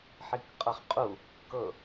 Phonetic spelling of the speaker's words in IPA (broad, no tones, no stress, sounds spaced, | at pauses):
ħ i k qʼ ɤ χ qʼ u | k ɤ